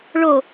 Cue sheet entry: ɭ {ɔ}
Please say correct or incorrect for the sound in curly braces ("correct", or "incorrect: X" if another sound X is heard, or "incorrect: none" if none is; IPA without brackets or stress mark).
incorrect: o